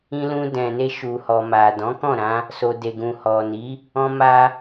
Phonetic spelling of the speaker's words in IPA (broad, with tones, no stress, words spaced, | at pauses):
ĩ˧lũ˧dɛ̃˨ne˧ ʃu˨hɔ˨ma˨ dɔ̃˨˦kɔ̃˦˨ɾã˧ | so˨de˨ɡũ˨ hɔ˨ni˨˦ | ɔ̃˧ma˧